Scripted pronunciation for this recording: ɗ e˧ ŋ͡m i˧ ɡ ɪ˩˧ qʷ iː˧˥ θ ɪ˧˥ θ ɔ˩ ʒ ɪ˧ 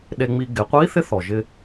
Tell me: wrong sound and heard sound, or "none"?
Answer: none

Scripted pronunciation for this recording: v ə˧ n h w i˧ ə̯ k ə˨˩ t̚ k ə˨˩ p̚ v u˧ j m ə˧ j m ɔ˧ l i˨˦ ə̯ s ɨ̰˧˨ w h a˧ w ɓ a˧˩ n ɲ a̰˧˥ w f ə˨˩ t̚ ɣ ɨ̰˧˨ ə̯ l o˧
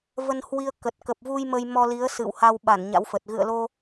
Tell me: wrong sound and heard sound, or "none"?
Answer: none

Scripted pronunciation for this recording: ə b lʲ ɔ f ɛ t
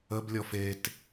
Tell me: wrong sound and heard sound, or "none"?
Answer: ɛ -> e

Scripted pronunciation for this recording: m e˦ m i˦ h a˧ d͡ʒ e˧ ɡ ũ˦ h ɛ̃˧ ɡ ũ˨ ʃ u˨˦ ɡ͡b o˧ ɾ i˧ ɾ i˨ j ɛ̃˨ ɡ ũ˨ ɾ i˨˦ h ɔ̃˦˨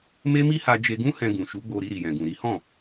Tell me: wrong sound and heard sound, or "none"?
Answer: none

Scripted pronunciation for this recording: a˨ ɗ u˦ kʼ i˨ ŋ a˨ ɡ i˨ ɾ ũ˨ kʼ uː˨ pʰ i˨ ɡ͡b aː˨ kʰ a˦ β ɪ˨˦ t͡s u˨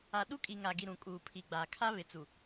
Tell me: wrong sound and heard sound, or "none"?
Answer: none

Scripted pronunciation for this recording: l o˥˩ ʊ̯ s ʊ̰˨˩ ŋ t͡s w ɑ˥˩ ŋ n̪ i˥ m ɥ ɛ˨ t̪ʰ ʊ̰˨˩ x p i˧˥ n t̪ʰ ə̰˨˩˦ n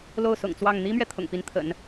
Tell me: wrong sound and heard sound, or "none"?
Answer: x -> ŋ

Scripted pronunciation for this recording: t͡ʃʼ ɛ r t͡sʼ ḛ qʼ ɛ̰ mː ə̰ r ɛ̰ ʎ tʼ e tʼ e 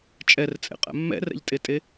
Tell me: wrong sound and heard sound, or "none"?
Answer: ə̰ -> ɛ̰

